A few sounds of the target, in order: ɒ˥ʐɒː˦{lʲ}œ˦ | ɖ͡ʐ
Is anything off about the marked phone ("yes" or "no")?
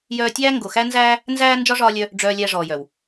no